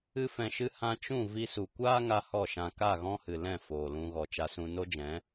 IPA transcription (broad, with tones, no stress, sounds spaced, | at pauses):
ɨ˧ f ɛ̃˨ ʃ ɨ˧ h ã˧ t͡ʃ ũ˦˨ v i˧ s u˨ kʷ aː˦ ŋ a˦ h ɔ˦˨ ʃ ã˧ k a˦˨ ɣ ɔ̃˦ h ɨ˨ l ɛ̃˦˨ f oː˨ l ũ˧ ɣ ɔ˨ t͡ʃ a˧ s ũ˧ n o˦ d͡ʒ ɛ̃˨˦